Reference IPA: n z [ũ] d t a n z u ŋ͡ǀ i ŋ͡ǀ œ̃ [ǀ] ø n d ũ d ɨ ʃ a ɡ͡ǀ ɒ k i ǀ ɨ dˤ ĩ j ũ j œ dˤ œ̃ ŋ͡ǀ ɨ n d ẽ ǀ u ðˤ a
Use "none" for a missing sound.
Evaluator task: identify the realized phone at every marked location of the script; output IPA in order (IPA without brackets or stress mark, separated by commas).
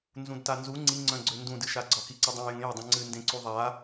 ũ, ɡ͡ǀ